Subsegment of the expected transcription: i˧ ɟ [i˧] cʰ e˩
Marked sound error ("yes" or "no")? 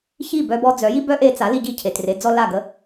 yes